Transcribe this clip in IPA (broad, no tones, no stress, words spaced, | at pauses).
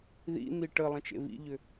ðḭn̪i ʈə lˠə̃t͡ʃḛvḭʎʏ